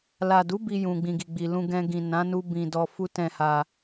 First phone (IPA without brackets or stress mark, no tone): l